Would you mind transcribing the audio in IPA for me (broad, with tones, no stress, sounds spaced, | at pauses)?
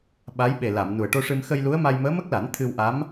ɓ a˧˥ j ɓ e˨˩ l a˨˩˨ m n u˨˩ ə̯ ʈ o˧ ʂ ɨ˧ m x ə˧ j l u˧˥ ə̯ m a˧ j m əː˧˥ m ə˦˥ k̚ l a˨˩˦ n t̪ʰ ɨ˧ w ʔ a˧˥ m